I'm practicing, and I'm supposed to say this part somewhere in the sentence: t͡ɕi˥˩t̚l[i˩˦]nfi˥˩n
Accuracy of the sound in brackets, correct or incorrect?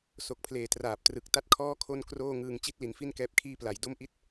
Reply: incorrect